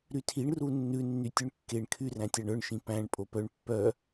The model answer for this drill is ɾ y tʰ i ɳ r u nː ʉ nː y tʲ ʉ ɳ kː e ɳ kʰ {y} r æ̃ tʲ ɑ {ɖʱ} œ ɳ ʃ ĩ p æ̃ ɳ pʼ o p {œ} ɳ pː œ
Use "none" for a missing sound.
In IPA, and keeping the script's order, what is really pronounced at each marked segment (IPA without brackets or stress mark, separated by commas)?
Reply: y, ɳ, œ